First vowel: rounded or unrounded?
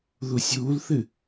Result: rounded